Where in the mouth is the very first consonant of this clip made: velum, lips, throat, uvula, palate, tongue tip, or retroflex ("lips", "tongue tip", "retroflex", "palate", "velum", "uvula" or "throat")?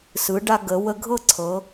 tongue tip